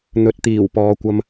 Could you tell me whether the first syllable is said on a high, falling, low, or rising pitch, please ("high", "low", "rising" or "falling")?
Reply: rising